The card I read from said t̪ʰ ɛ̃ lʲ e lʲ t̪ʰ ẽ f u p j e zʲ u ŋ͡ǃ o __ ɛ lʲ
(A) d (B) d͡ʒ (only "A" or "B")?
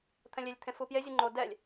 A